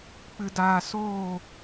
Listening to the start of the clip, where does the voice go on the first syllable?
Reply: low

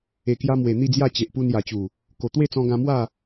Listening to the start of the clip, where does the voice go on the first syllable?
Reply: low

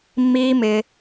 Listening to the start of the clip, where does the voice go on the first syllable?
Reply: high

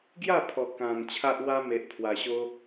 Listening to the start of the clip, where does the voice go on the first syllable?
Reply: falling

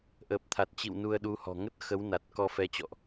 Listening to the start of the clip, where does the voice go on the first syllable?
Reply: low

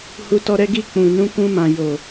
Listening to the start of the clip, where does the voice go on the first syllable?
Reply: low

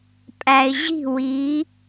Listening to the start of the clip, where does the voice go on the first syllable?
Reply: low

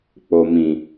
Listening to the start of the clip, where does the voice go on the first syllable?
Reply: low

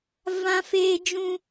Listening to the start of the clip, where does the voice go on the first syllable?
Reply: high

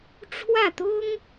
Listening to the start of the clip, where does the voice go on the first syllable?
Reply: falling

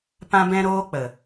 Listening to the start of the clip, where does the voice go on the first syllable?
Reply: high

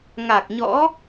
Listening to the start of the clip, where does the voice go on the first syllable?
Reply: low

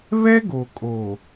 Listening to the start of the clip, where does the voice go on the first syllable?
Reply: high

